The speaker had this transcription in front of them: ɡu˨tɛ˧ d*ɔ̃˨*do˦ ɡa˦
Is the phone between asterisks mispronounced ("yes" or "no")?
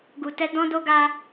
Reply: yes